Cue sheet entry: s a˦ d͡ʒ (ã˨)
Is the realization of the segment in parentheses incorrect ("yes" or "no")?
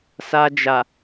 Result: yes